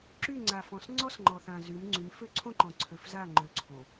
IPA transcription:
ǁ y˦˨ ŋ͡ǀ a˨ f ɔ̃˨ s ŋ͡ǀ ɔ˦ s ŋ͡ǃ ɔ˨ θ ã˨ z y˨˦ m ŋ͡ǀ y˨˦ m f ø˦ ǀʰ õ˦ ǃ ɔ̃˨ ǀʰ ø˨ f z a˦˨ ŋ͡ǃ ø˨ ǀʰ õ˨

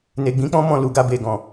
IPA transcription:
n e˨ ɡ͡b ĩ˨˦ k͡p ɔ̃˦ m ɔ̃˦˨ l u˨ ɡ a˧ b e˨ ɡ ɔ̃˨

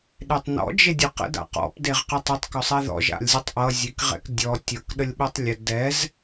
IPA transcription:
ɗ e tˤ n ɔ̰ d͡ʒ e dʲ ʌ q ə̰ d a̰ q ɔ̰ p d e ʁ q ə tˤ ə tˤ k ɔ sˤ ɛ ð ɔ̰ ʒ a̰ lʲ zʲ ʊ tˤ ʔ ʌ zʲ e k ʁ ɛ̰ k dʲ ɔ tʲ ʌ k ɗ ə lʲ ɓ ɛ tˤ lʲ ə d ɛ z

